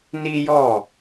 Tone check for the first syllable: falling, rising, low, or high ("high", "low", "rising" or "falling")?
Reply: high